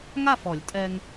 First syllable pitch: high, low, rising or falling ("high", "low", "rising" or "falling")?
falling